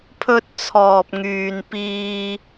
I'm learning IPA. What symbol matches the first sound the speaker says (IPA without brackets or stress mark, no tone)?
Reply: pʰ